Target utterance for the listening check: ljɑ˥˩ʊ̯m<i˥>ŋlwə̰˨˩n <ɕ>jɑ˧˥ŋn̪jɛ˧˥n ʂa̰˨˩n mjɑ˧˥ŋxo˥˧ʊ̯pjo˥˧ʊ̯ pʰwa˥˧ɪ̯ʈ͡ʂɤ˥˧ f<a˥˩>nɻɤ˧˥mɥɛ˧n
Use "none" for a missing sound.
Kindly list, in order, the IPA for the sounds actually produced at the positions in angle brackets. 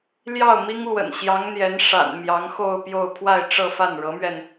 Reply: i˥, ɕ, a˥˩

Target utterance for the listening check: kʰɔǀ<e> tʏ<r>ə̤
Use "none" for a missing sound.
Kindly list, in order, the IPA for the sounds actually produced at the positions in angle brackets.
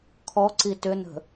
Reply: i, n

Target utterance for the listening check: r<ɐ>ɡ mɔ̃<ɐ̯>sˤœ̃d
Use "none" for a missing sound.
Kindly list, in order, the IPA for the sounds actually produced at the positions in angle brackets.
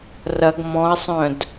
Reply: ɐ, ɐ̯

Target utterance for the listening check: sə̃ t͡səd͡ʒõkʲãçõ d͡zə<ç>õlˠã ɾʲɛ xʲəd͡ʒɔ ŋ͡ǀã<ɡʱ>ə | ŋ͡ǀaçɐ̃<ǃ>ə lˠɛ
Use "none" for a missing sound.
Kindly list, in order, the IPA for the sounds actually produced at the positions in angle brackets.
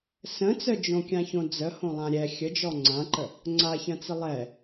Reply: h, ǃ, t͡s

